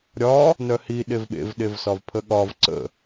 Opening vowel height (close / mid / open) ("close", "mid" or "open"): open